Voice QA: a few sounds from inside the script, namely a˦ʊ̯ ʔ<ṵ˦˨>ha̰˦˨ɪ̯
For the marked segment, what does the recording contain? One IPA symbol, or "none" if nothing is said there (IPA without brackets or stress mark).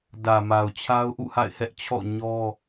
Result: ṵ˦˨